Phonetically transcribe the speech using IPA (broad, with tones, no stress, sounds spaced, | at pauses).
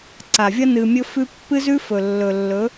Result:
ǀ a˨ vʲ ɐ˦ n ɨ˧ mʲ ɵ˦ f ʉ˦ pː ɨ˦ z ʉ˦ f ɵ˨ lː ɵ˨ lː ɵ˨˦